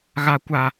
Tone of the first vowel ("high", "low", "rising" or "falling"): high